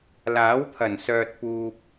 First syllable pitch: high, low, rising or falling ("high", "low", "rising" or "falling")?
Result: rising